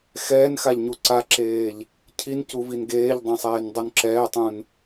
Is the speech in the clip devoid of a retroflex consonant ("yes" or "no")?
yes